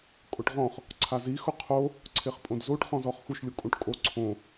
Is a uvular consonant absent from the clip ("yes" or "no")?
no